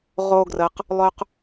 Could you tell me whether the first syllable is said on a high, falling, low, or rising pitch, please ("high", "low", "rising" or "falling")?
high